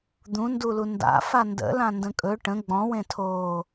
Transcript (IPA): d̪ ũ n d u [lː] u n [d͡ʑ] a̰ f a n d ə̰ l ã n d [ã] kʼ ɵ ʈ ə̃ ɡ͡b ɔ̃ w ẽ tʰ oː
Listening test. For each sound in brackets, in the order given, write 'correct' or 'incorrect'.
incorrect: l, incorrect: d, incorrect: ə̃

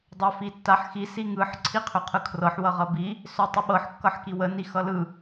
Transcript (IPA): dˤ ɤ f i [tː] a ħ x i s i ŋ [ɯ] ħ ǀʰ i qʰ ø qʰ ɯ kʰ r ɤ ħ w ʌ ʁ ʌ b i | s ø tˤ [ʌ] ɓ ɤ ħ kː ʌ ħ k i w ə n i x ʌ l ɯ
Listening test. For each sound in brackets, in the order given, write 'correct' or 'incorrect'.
correct, correct, correct

